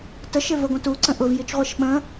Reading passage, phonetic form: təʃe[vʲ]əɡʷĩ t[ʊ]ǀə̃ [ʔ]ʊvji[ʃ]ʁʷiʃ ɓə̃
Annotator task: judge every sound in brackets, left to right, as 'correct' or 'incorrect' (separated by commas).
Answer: incorrect, incorrect, correct, incorrect